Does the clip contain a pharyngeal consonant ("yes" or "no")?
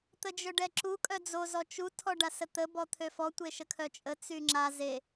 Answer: no